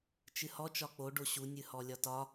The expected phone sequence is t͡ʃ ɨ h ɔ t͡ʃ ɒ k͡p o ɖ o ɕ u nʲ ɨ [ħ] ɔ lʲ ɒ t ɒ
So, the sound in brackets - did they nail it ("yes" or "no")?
no